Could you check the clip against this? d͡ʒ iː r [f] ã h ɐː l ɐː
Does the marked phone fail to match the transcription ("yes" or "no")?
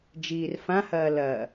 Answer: no